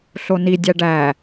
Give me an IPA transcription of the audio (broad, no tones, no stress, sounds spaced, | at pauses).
ɬ o n i dʲ æ ɖ æ